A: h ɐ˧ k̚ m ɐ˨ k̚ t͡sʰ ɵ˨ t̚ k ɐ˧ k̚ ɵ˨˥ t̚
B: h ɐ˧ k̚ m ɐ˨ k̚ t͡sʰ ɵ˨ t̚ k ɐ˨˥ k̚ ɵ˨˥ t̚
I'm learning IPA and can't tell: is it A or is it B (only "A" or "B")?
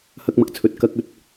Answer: A